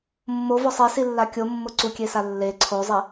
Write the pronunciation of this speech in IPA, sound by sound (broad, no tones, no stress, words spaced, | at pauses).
mːovɔ sˤesilːa kʲomːʊ ǀukʲesa lːe ǀʰozˤi